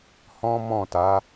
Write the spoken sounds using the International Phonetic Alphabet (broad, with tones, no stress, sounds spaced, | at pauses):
h ɔ̃˦ m ɔ̃˦˨ t a˨˦